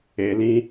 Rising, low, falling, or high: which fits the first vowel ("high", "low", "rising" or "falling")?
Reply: low